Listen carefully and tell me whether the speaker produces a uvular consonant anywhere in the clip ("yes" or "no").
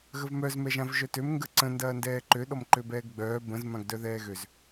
no